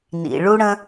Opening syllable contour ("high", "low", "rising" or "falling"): low